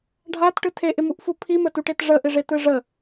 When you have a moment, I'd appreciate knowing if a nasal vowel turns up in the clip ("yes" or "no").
no